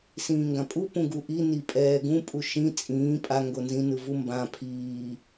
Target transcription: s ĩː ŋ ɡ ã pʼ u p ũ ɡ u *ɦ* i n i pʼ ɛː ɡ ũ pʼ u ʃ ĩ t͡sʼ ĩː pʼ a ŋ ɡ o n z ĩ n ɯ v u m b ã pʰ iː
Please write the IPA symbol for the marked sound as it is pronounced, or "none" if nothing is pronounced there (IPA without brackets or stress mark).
ʔ